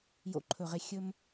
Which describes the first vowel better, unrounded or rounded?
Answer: rounded